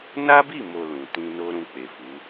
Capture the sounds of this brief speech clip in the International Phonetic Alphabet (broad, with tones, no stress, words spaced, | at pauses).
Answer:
na˦bi˦˨mo˨ lũ˨tĩ˧ no˦ɾũ˧k͡pe˨fu˨˦